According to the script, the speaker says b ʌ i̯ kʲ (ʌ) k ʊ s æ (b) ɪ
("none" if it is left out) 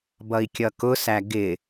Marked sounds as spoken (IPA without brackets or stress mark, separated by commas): ʌ, ɡ